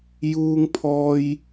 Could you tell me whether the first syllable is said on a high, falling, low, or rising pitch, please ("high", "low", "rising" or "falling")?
high